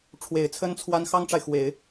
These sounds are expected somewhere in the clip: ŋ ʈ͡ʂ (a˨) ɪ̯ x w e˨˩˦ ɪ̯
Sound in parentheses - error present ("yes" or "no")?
no